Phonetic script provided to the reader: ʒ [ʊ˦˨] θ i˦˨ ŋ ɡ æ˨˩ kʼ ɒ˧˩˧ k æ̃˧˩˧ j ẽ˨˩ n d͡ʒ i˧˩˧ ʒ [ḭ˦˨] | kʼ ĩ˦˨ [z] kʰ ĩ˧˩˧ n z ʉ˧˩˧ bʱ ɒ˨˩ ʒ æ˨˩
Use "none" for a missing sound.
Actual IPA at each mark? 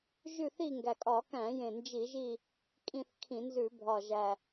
ʉ˦˨, i˦˨, θ

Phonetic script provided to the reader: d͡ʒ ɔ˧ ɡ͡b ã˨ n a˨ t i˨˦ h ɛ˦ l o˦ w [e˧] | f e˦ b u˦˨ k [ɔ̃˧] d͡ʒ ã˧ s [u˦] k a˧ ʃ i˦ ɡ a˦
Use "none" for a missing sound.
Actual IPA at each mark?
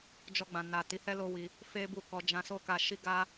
i˧, ɔ˧, o˦

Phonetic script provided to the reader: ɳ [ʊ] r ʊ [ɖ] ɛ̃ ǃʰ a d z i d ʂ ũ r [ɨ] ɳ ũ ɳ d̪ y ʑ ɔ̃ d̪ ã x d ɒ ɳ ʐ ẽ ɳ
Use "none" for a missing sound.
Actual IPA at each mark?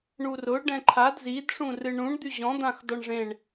u, ɖ, ɨ

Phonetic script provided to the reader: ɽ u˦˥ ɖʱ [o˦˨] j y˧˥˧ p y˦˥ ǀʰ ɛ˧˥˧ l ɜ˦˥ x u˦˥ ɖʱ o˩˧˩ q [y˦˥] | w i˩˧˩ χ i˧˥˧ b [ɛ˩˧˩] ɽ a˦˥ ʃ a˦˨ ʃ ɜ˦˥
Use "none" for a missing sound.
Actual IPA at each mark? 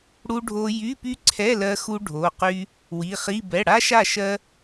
o˦˥, y˦˥, ɛ˩˧˩

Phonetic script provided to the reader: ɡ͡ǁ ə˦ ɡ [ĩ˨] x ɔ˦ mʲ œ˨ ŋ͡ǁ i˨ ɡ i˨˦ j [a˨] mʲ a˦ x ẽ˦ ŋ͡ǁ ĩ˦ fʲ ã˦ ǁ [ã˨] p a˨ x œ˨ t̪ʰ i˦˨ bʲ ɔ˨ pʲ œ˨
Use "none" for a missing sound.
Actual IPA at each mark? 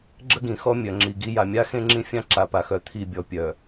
ĩ˨, a˨, a˨

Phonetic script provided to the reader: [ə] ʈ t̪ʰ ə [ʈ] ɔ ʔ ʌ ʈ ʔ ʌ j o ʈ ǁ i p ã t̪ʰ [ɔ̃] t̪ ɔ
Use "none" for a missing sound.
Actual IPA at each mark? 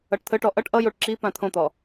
ʌ, ʈ, õ

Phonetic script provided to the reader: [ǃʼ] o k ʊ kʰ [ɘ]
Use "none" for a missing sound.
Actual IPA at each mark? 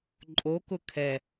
ǃʼ, ɛ

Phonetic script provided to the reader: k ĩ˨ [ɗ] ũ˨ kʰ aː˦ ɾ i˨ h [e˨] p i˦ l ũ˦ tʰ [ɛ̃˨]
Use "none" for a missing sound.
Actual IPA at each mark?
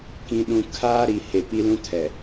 ɗ, e˨, ɛ˨

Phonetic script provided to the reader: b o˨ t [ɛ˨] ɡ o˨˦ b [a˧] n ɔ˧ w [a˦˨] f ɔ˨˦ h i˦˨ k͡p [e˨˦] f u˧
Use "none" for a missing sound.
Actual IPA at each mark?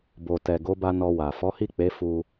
ɛ˨, a˧, a˨, e˨˦

